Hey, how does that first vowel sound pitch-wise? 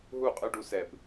falling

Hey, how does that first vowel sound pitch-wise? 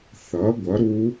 rising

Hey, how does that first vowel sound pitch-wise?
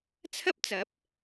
high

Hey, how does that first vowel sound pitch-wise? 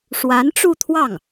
rising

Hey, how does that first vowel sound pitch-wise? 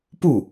falling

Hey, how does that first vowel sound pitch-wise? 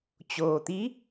low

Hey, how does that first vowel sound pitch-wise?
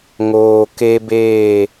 low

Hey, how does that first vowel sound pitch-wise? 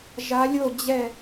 rising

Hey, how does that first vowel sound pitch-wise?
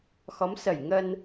rising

